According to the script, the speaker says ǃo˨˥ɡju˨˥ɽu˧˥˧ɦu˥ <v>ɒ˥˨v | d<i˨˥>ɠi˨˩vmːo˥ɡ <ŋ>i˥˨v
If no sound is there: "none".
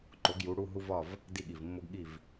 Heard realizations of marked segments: v, i˥˨, ɠ

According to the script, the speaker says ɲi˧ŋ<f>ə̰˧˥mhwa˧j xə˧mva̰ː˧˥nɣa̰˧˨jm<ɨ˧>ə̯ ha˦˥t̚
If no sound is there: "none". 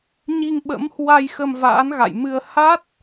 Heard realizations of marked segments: ɓ, ɨ˧

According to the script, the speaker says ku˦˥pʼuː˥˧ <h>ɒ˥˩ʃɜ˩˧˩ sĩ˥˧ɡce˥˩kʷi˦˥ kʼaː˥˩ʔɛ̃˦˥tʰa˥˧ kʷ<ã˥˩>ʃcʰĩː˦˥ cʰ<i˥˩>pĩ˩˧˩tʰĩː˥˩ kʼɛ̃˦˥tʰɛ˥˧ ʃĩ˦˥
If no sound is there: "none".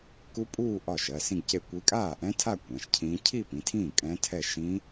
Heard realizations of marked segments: ʔ, ã˩˧˩, i˥˧

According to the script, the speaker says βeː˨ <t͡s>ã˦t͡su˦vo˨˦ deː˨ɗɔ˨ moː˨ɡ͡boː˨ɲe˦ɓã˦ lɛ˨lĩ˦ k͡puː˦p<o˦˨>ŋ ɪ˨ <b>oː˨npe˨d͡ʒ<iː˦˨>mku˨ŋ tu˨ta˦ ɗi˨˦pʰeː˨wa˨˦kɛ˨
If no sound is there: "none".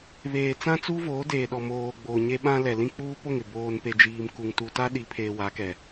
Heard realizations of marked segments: t͡s, o˦˨, b, iː˨

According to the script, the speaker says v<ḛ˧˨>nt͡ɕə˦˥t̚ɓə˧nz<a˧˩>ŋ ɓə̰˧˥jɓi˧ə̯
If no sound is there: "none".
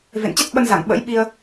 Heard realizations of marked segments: ḛ˧˨, a˧˩

